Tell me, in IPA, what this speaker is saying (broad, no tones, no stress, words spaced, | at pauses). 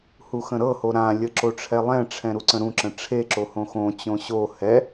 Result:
huxə̃ɾɤho ɾãlʲə ǁoʈ͡ʂʰɛlˠɛ̃ʈ͡ʂʰɛ̃ ɾuǀə̃ɾũǁə̃ ʈ͡ʂʰeǁo hõxõt͡ɕõ ɕo hɛ